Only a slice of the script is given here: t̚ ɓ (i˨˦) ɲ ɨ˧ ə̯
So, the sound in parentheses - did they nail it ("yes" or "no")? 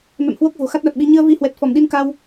yes